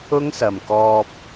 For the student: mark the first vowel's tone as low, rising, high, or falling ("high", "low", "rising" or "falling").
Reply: high